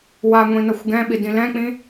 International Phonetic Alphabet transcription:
w a ŋʷ ĩ n ʌ xʷ ɡ ɛ̃ ɓ i d ĩ l ɛ̃ k͡p ĩ

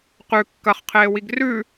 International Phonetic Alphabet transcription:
q ʉ kː ɐ χ qʰ eː w i ɡ r ʉ

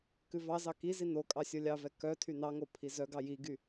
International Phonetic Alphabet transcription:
k ʉ v ɑ z ɑ k i z i n o kʼ ɑ sʲ o lʲ ɑ v ɛ k œ tʰ y n ɑ ŋ o pʰ i z œ ɡ ɑ j i ɡ y

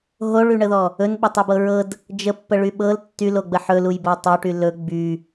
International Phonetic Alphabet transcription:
ɦ o ɭ y ɳ ə ð ɔ | ɵ n ɓ ə tˤ y b ɤ ɹ ɤ d | d͡ʒ ə pː ə ɭ y ɓ ɤ l tː y l o ɡ͡b ə ħ ɵ l u j b o tˤ ɵ ʈ y l ɵ ɡ͡b y

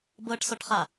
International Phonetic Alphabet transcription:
b ɤ ʈ s ɔ ʈ χ a

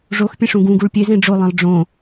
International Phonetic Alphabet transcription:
ʐ o x pʲ ẽ ʂ ũ ɡ ũ ɡ u ɭ pʲ e z ẽ ɖ͡ʐ o lˠ ẽ lˠ ɖ͡ʐ õ

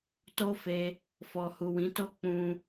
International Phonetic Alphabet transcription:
t o˦ f e˧ | f ɔ˨ h u˨ w ĩ˨˦ t o˦ k͡p ũ˦

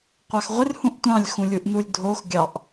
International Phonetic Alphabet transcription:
qʷ ɑ x ʁʷ ɪ r h ũ ʔ tʷ ɑ̃ lʲ x ũ lʲ u ʔ n u lʲ dʱ o x ɡʲ ɑ ʔ

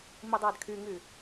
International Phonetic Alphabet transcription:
m i dˤ aː d kʰ y ŋ y

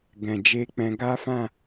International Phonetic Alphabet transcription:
ɡ ɛ̃˨ d͡ʒ e˧ k͡p ɛ̃˧ ɡ a˦ f ã˦˨

